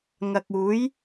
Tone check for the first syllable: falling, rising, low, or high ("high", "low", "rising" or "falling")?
low